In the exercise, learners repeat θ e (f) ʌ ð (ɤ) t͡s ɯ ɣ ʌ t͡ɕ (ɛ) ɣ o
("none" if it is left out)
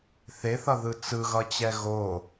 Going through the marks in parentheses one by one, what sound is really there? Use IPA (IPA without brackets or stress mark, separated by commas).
θ, ɯ, ɛ